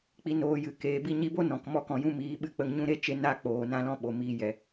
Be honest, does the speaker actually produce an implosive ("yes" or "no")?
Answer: yes